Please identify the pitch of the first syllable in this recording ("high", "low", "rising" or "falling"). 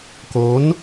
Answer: rising